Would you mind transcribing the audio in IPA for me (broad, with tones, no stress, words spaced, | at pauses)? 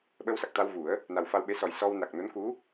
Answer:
ɓə˧wsa˨˩k̚t̪a˧w vu˨˩˦ə̯ | na˨˩wfa˧wɓe˧˥ sɔ˨˩jsɔ˧w na˨˩k̚no˧˥n ku˧˥